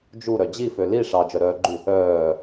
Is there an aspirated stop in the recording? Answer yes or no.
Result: no